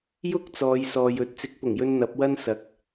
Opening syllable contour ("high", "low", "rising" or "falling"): high